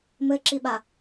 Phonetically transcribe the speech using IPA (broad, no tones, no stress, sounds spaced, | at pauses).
m ɘ ǁ i ɓ a